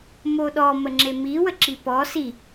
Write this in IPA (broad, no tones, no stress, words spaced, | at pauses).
moɗɔ məŋ͡ǁemi wəǁipɔ si